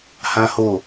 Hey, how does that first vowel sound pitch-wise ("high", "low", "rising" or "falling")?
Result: high